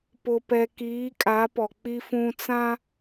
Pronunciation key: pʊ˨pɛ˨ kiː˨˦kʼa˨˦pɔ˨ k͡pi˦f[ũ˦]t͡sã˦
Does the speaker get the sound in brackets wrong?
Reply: no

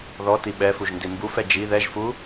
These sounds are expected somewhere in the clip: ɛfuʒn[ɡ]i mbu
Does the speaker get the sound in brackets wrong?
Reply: yes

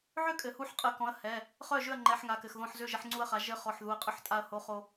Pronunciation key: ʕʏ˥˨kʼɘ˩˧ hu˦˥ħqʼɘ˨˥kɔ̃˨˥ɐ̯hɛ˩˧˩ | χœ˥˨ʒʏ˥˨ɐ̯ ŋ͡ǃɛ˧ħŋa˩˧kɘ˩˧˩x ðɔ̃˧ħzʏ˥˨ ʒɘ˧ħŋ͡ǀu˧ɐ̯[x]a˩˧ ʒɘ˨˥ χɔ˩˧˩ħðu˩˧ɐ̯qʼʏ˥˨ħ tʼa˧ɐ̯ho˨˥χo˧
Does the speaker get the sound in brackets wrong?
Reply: yes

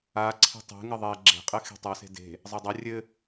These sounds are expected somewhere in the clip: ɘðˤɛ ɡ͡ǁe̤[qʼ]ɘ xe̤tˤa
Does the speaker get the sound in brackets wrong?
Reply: no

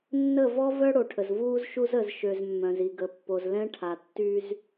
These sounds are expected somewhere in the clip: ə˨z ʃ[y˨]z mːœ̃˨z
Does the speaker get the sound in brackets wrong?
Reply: yes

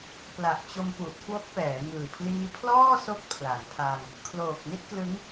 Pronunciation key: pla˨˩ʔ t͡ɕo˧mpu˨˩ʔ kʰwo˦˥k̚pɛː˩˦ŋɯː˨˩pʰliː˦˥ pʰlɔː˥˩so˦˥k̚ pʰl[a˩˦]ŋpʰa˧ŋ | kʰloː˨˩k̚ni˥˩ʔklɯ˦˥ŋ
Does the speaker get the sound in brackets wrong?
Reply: no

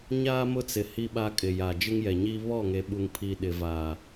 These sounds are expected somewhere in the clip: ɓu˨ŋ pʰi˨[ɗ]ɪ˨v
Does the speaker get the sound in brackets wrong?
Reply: no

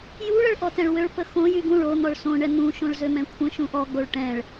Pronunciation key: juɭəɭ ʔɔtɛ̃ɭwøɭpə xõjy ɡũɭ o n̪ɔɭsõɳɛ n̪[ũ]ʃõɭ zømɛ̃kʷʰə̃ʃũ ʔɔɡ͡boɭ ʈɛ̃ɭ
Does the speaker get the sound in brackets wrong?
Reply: no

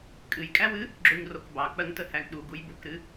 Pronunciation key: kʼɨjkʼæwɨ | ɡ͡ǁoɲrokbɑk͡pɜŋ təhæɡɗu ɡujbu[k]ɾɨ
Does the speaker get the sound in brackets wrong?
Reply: no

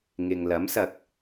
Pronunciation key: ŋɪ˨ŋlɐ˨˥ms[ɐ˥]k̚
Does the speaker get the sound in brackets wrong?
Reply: yes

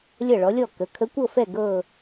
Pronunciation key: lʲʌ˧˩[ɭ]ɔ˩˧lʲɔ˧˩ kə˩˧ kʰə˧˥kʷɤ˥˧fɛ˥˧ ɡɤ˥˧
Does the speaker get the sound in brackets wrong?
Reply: no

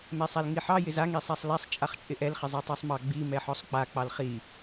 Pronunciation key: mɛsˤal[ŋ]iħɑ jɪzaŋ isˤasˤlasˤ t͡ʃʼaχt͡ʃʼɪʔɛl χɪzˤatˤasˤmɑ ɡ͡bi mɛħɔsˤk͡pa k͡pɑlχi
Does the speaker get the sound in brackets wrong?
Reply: no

